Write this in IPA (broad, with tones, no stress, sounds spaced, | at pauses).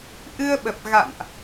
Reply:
ʔ ɨ˧ ə̯ ɓ ə˨˩ p̚ ɣ a̰˧˨ n ʔ